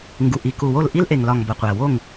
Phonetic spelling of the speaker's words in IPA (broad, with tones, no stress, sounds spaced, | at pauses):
ŋ ɡ u˨ ʔ i˨ k u˨ w o˦˨ l ʔ i˦ l ʔ e˨ ŋ l ɒ˨ ŋ b ɒ˨ qʷ æ˨ w o˦˨ ŋ